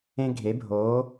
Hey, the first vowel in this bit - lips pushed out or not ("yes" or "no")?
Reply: no